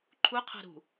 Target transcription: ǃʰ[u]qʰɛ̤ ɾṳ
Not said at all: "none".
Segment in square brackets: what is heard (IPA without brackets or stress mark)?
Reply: u